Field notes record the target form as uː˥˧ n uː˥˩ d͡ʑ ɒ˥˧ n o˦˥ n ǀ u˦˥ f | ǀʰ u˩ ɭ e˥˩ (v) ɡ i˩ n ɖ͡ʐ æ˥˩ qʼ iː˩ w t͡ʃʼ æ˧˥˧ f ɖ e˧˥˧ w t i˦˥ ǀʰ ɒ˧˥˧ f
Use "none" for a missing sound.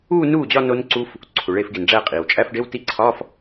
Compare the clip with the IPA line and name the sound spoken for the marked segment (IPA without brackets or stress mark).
f